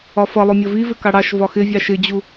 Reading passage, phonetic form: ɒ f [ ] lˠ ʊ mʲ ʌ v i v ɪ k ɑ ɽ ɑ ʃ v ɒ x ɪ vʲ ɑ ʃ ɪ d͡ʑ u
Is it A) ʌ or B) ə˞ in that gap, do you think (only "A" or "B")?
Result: A